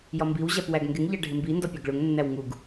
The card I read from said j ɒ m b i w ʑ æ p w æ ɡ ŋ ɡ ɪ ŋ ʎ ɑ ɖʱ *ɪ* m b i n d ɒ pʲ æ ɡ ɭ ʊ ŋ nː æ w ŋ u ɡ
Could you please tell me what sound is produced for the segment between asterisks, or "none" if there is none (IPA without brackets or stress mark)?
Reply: ɪ